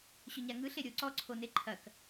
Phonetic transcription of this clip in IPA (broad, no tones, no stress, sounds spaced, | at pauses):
ɕ ɵ ɲ a ŋ ɯ ɬ e ɾʲ o ǀ ɔ ǀʰ o n e ǃʰ ɐ k